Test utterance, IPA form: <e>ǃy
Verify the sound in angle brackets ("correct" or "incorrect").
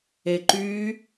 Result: correct